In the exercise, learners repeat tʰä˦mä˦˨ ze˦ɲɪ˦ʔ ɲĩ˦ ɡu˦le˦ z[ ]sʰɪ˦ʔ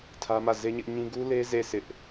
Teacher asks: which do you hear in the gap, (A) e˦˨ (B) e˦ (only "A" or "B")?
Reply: A